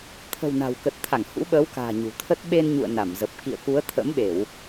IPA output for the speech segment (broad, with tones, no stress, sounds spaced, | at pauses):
t̪ʰ ə̤˨˩ w n a̤˨˩ w k ə˨˩ t̚ t̪ʰ a˧˩ ŋ h ṵ˧˥ ɓ əː˨˦ w k a̤ː˨˩ ɲ ṳ˨˩ t̪ʰ ə˦˥ t̚ ɓ e˧ n ɲ ṵ˧˨ ə̯ n a˧˩ m z ə˨˩ p̚ k ḭ˧˨ ə̯ k u˨˦ ə̯ t̪ʰ ə̰˧˥ m ɓ e˧˩˨ w